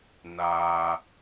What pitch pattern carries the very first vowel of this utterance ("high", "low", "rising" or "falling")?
low